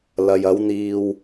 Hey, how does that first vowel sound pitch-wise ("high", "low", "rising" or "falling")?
low